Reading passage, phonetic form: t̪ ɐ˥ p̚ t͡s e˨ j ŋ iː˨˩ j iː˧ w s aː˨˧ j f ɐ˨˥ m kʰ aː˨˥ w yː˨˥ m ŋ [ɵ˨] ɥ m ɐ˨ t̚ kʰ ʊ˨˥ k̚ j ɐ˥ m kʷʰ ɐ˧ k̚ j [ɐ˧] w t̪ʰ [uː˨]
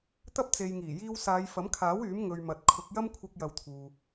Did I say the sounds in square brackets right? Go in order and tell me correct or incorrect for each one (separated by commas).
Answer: correct, correct, correct